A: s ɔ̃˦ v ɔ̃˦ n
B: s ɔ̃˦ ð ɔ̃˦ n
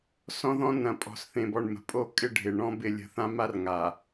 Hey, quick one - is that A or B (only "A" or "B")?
B